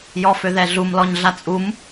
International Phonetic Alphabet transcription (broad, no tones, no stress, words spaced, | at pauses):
jɔføðɛɮum lɔɲɮat͡sʼum